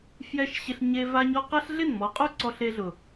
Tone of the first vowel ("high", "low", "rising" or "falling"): high